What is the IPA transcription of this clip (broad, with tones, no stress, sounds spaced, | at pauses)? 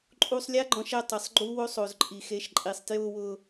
ǃʼ u˧ sˤ lʲ a˦ ɡ͡ǃ ɔ̃˧ ʃ ɛ˧ tˤ ɪ˨ sˤ ɡ͡ǃ u˦ w o˦ sˤ o˨ z ǃʼ i˨ x e˨˦ ʃ ǃʼ i˨ sˤ t j ʊː˧ w ʊː˧